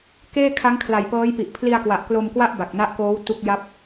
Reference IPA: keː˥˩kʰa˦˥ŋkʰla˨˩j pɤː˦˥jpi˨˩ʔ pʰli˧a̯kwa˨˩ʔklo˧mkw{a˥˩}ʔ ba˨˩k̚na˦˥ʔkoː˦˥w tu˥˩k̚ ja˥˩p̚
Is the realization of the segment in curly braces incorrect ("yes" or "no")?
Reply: no